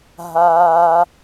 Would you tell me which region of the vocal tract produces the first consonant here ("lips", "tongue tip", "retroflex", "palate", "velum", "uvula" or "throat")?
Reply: throat